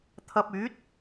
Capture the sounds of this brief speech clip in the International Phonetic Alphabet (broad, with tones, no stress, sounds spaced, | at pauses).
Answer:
t̪ʰ ɐ˧ p̚ yː˨˥ t̚